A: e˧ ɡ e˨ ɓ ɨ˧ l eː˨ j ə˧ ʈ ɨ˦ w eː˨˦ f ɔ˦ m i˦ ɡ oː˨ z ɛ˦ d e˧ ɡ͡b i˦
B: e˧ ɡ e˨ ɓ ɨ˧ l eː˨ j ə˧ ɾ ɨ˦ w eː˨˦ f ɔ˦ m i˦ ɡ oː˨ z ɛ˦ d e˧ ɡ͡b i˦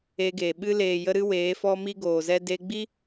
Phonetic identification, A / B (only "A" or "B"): B